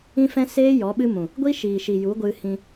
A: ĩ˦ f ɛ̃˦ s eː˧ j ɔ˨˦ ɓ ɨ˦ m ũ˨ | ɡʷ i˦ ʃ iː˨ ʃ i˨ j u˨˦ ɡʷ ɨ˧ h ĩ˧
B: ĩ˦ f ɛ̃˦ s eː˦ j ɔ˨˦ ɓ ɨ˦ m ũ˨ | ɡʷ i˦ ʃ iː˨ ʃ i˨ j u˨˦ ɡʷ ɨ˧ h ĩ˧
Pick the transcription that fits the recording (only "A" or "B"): B